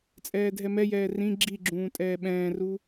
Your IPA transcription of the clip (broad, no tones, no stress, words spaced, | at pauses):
t͡sʼɛːdʱɛmɛjɛː rĩ ɡ͡ǁiɡ͡ǁũː tʼɛːɓɛ̃ːru